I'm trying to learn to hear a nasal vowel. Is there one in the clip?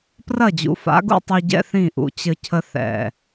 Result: yes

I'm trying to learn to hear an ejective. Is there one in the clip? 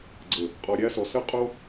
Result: yes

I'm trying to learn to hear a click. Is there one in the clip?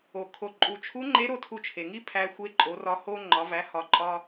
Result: yes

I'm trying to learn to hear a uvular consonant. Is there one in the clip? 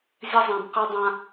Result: yes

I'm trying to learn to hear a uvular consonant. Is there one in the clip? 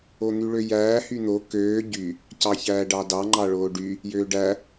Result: no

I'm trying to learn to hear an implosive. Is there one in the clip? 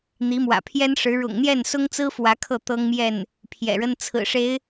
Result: no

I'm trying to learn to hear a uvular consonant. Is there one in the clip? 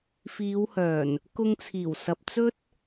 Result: no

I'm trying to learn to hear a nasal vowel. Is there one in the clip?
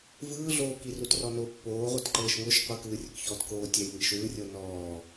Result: no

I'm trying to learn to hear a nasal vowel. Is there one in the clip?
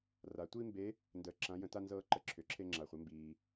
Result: yes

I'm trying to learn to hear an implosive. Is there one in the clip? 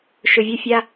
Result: no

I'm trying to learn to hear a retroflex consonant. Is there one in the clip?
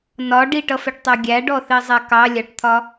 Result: yes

